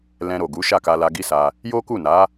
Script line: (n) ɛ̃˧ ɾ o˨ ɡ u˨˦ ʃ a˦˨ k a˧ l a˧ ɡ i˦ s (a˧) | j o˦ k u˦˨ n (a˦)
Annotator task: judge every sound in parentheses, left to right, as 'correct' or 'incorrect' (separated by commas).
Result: incorrect, correct, incorrect